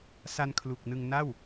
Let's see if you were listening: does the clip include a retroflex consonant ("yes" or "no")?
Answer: no